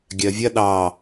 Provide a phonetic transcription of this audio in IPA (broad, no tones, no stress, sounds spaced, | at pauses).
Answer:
ɡʲ ɜ vʲ ɐ ɗ ɑ